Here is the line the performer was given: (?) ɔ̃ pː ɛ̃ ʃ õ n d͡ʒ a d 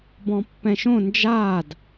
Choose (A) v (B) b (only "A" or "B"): B